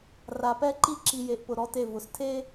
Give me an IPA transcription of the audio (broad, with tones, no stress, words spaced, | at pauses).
ra˨ pɛ˦ ǃi˦ǁi˨je˨ʔpʊ˨ ɾɔ˦te˦˨vʊ˨˦s tʰe˦